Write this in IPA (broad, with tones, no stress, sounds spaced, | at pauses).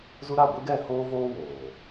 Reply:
z u˦ ɾ a˦˨ ɡʷ e˦ ɡ ɛ˦˨ h oː˦ v oː˦ w oː˨